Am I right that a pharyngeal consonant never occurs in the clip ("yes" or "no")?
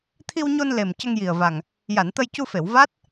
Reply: yes